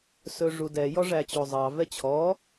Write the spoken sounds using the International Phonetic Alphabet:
sɵʐudɛ jɔʐæt͡ɕozˤɑ vɛt͡ɕʰɔ

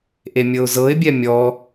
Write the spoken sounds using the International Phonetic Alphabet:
ʔemʲɤʊ̯zɤɪ̯bʲɛ mʲɔ

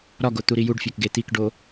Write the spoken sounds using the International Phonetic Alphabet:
ɾɒɡo t̪uɾijuɖfʲɒk ɡet̪ikɖo

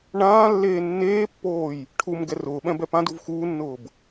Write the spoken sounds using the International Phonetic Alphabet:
ɳãː lːeːnːeːpːoːj | ʈʰum ɡɛrʊːɓɛ̃ bɛpãduv xuːnːʊːb

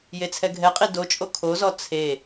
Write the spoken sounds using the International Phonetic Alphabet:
jet͡sʰɛɡʱɛqʼi dot͡ʃʼo kʰozɔ t͡sʰe

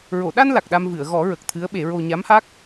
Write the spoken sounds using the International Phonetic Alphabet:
ɹo˨˩˨ɗa˧n la˨˩k̚ɗa˧m vɨ˨˩˨ə̯ɣɔ˨˩˦ɹə˨˩k̚ t̪ʰɨ˧˥ə̯ɓe˨˩˦ɹo˧ ɲa˧˥mha˦˥k̚

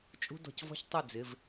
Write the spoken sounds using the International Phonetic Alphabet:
t͡ʃʼṳ˥dɔ̤˧cvɔ̤˥ç tˤʉ˥˩d͡zɪ˩˧˩v

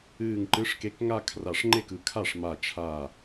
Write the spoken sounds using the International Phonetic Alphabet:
ɨː˧˩ŋǃɨ˨˥ʂke˨˥k ŋa˥˧ kʰra˧˩ʂŋ͡ǃe˥˩kɯ˧˩kʰa˥˩ʂ ma˧˩ t͡ʃʰa˧˩

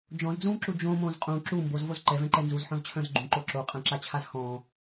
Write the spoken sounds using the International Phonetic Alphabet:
d͡ʒɔ̃zd͡zũːǁu d͡ʒõmõːz qʼũ ǁu mbozvoz ǃɛvɛ̃ǃɛ nzuzħɔ̃zt͡ɕʰœ̃z ɡ͡ǃũǃo ǁoqʼɛ̃ǁat͡ɕʰaz xɔ̃

